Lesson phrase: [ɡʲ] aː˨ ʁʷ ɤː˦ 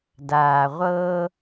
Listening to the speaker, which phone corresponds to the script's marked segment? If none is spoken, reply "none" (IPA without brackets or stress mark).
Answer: d